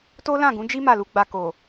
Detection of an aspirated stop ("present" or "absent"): absent